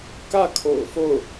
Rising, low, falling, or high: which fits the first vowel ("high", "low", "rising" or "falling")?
falling